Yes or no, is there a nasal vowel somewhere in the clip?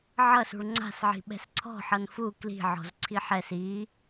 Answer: no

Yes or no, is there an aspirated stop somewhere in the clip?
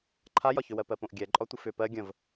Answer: yes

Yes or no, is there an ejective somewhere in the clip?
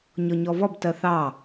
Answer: no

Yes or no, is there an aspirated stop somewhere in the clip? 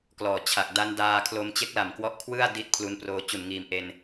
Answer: yes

